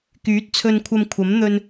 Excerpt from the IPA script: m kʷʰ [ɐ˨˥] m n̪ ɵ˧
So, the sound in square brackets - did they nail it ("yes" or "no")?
yes